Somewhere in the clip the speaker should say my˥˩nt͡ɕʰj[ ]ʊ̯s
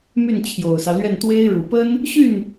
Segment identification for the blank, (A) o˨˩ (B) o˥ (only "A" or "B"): A